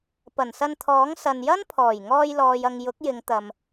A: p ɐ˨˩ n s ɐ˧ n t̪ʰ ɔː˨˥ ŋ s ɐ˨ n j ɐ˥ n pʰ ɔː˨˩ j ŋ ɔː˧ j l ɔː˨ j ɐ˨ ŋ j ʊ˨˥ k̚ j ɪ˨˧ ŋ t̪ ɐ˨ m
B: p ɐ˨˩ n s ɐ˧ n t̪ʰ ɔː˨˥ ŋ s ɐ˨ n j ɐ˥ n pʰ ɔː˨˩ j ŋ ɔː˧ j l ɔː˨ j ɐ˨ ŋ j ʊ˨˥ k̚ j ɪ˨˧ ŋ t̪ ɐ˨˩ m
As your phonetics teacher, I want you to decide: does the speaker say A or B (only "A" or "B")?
A